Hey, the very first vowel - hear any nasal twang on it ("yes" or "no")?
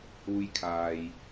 no